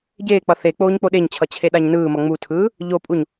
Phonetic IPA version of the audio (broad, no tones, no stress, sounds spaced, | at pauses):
ɟ eː k͡p ʌ θ e k͡p oː ɲ k͡p o ɗ e ɲ t͡ɕʰ ʌ t͡ɕʰ e ɗ a ɲ n ɯː m ʌ ŋ͡m u tʰ ɯː | ʎ o pʼ u ɲ